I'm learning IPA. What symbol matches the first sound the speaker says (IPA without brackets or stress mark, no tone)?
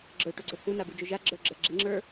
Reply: ɡ͡ǁ